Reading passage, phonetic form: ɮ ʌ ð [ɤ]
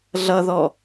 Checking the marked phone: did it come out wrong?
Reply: yes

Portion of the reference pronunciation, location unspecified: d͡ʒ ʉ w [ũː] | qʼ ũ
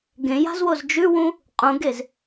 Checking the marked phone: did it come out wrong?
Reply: yes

